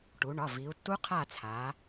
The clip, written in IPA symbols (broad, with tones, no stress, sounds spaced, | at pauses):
ʈ u˩˧ ɳ ɒ˩˧˩ v i˩˧ u̯ tː u˦˥ qʰ a˦˨ t͡sʰ a˩˧